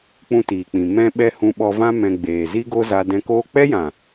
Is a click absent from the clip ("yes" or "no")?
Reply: yes